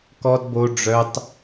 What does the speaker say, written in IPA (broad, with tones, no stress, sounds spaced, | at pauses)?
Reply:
k ɔ˦ d b o˦ ɖ͡ʐ œ˦ tˤ